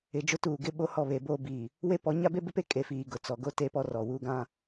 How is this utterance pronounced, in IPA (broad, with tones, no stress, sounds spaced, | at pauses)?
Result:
ɪ˨ d͡ʒ ʊ˦ t uː˨ ɡ ɪ˦ ɓ o˦ h ɔ˦˨ β e˨˦ b oː˦ b iː˨ | w e˦ p ɔ˨˦ ɲ a˦ b e˦ b ɪ˦ p e˦ kʼ e˨ f iː˨ ɡ ʊ˨ t͡s ɔ˨ ɡ o˦ t e˦ p ɔ˦ r ɔ˨ w uː˦ ɡ ã˦